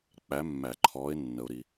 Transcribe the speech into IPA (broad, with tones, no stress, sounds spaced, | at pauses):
k͡p æ˨˦ mː æ˨˩˦ ǃʰ ɔː˨˦ ɪ̯ nː ə˨ ʊ̯ ɾ i˨